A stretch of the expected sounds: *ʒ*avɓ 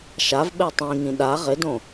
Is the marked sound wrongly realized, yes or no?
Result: yes